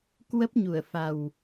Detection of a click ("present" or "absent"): absent